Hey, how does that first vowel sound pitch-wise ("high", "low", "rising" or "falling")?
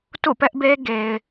falling